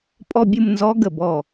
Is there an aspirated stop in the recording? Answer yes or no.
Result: no